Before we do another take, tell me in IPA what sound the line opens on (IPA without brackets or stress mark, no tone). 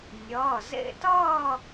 nʲ